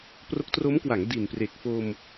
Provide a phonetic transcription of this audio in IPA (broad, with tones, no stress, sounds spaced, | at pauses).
p r o˦˥ k̚ t r o˦˥ m k w a˩˦ ŋ d i˨˩ n p r e˨˩ k̚ f o˧ m